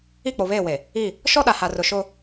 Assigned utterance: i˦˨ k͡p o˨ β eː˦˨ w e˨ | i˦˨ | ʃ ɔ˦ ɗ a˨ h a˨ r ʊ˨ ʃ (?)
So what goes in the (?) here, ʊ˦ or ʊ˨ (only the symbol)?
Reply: ʊ˦